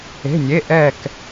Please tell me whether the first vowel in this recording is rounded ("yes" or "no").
no